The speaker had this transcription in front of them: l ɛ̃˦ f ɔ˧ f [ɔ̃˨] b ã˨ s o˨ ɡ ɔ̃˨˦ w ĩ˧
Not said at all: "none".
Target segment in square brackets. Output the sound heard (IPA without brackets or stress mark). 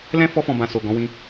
ɔ̃˨